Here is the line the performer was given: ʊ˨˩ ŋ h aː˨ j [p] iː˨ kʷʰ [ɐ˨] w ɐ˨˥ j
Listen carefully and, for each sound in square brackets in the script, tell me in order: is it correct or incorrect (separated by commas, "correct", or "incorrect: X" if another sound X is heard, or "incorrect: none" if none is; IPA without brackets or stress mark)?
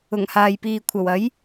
correct, incorrect: ɐ˨˩